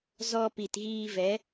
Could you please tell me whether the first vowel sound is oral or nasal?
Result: oral